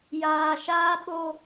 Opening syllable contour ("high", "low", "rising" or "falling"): low